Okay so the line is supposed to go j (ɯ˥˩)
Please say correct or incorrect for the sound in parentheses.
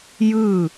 correct